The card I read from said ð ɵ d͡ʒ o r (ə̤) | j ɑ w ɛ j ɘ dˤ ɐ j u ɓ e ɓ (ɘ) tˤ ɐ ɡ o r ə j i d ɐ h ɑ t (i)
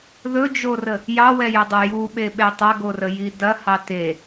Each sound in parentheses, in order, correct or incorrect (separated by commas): incorrect, incorrect, incorrect